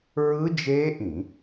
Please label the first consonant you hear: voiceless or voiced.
voiced